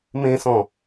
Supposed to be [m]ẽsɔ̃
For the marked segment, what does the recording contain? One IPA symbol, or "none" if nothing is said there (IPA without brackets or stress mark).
m